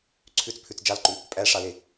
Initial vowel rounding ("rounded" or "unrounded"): rounded